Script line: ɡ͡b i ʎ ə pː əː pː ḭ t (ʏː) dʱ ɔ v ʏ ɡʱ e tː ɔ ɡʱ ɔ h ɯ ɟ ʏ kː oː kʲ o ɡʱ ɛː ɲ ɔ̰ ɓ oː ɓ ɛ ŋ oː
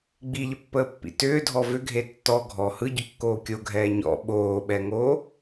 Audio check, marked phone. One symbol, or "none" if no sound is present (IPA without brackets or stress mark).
ʏː